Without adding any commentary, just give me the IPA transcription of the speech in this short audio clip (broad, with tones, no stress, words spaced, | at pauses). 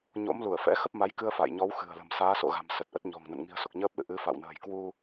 ɲo̰˧˥mlu˧˩ə̯ fɛ̰˧˥xə˦˥p̚ma˨˦jkɨ˧ə̯ fa̰˧˨jɲɔ˨˦wxɨ̤˨˩ə̯lə̤˨˩m saː˨˦so̰˧˨ɣa̤˨˩m sə˨˩t̚ʔə˦˥t̚ ɲɔ̤˨˩ŋnə̰˧˨n ŋi̤˨˩ə̯so˨˩k̚ɲəː˦˥p̚lɨ̰˧˨ ʔɨ˨˦ fa̰˧˨wnə̤ː˨˩j kwu˧